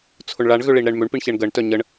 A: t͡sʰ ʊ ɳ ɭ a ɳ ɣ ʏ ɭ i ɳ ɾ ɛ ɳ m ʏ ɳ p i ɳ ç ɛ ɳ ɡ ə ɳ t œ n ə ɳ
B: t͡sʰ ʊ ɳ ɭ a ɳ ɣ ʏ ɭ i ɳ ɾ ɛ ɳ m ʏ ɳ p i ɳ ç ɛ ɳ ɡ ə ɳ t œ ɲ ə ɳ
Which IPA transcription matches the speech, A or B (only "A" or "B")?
B